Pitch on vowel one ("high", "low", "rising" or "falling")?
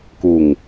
low